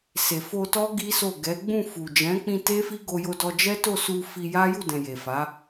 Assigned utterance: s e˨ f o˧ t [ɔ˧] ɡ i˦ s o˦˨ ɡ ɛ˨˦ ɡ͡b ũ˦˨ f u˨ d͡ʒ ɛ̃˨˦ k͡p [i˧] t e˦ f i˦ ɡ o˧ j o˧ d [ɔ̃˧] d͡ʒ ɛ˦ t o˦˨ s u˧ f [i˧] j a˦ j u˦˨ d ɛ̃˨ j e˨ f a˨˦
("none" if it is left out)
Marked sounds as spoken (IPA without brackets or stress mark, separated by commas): ɔ˦, ĩ˧, ɔ˧, i˧